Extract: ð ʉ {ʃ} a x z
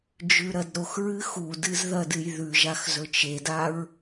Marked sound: incorrect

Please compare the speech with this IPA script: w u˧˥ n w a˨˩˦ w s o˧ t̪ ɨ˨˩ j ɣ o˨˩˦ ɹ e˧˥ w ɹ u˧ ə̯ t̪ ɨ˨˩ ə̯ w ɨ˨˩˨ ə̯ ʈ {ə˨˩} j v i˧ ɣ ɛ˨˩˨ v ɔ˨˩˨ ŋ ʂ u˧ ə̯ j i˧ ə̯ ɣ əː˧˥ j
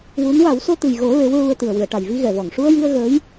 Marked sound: incorrect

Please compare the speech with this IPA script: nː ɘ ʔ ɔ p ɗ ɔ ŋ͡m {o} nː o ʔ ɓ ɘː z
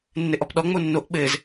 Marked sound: correct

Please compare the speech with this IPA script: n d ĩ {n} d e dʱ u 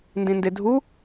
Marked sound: correct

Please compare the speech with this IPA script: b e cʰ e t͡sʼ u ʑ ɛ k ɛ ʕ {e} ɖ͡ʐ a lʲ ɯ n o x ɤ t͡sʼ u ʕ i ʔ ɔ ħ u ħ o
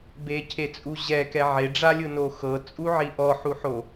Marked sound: correct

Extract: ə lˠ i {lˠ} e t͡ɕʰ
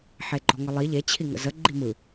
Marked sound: incorrect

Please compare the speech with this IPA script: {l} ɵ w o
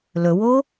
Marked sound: correct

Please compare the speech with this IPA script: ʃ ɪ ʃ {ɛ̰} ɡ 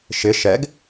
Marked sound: incorrect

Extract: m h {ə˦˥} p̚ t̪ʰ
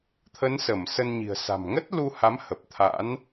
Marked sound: incorrect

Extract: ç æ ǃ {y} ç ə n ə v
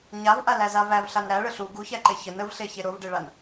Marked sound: incorrect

